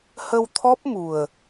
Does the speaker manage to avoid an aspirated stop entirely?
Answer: no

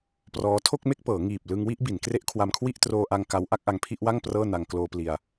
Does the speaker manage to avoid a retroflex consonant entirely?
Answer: yes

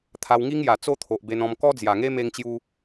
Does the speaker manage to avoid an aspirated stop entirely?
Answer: no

